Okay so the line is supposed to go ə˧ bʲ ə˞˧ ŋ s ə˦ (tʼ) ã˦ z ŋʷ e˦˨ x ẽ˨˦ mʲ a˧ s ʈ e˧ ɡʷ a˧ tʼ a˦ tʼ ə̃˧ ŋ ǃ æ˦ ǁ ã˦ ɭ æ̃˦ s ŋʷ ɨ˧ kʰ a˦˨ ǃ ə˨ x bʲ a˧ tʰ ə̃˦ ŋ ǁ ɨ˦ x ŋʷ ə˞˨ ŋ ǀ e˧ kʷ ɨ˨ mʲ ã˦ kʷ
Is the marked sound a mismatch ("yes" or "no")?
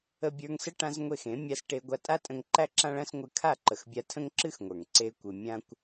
yes